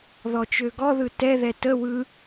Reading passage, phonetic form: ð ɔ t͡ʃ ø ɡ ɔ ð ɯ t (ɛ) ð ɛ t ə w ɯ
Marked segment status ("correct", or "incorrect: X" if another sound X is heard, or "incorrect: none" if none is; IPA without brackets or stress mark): correct